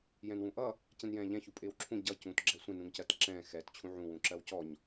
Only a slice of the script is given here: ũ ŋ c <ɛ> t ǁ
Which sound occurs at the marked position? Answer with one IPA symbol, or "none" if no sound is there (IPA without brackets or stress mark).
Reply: ɜ